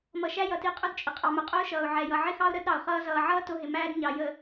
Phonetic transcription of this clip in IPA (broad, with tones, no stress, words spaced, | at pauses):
mʌ˨ʃæ˦ jʌ˨ti˨qʼʊ˦dt͡ʃʼɪ˨ qʼɑ˨mʊ˨qʼʊː˦ʃʌː˨ʊ̯ ʕɛ˨jʌ˨ʕɪ˦xɑ˦ʊ̯ ɾə˨˦d ɾɑ˨ʊ̯χʌː˦ zʌː˨ʕʌː˦ tʊ˦ɦɪ˨mæː˦d ɲɑ˨jə˨